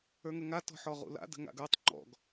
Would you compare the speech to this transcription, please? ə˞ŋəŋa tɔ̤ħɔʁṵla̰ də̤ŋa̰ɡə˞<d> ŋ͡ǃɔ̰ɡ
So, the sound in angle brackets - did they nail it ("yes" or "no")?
no